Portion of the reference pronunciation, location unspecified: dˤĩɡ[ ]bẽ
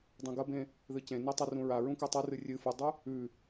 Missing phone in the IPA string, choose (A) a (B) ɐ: B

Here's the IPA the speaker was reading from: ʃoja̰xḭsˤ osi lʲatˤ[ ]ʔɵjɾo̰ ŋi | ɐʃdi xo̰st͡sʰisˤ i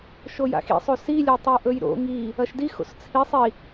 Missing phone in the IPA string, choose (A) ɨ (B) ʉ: B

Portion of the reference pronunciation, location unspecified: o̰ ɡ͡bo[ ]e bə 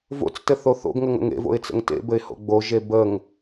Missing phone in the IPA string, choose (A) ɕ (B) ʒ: B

